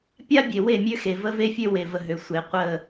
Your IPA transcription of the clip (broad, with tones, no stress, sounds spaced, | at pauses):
pʲ a˦ bʲ e˨ w e˦˨ mʲ ø˦ x e˨ v ə˦ v e˦ fʲ ø˦ w e˨ v ə˨ ɦ ø˨ sʷ e˨ qʷ ə˦˨